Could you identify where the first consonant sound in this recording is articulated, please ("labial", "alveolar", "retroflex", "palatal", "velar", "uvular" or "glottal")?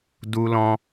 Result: alveolar